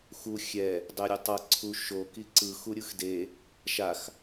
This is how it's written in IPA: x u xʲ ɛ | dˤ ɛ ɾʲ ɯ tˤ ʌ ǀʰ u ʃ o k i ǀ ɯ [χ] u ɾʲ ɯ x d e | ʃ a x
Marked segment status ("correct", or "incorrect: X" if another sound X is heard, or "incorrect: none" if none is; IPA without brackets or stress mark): incorrect: x